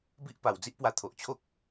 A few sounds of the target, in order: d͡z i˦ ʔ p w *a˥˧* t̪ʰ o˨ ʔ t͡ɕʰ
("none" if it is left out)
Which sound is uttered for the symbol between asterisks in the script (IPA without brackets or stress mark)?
a˧